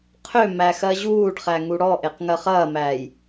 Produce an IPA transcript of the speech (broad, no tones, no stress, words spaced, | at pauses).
qʰø mæxɜʑuːɖχæ ŋuɽɔʔeq ŋɜχɐːmæːj